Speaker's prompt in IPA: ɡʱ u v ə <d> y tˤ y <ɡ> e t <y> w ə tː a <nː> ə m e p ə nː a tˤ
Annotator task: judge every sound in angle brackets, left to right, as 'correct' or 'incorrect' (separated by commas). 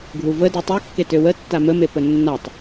correct, incorrect, incorrect, incorrect